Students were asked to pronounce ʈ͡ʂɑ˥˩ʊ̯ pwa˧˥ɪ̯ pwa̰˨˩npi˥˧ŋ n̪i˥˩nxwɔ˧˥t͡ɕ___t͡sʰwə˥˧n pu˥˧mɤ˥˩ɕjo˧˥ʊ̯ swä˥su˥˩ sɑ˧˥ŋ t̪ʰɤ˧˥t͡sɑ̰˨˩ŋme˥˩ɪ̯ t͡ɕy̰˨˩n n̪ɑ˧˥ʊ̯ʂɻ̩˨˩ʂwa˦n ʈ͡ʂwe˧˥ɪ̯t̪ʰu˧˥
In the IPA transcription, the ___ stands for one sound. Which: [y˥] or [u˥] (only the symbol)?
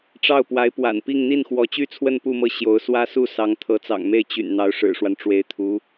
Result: y˥